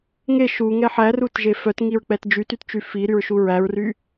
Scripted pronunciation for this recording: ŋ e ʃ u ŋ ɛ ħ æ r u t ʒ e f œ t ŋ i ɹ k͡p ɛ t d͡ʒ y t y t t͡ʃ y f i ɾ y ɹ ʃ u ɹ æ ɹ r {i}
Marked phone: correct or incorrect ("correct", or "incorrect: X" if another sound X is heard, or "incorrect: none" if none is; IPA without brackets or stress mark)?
incorrect: y